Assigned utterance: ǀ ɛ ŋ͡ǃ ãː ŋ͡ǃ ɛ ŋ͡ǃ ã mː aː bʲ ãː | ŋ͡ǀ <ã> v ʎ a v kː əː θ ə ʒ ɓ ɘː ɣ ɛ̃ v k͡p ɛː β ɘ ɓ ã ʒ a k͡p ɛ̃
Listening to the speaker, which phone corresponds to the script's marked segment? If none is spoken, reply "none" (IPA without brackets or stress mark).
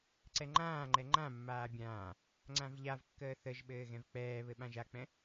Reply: ã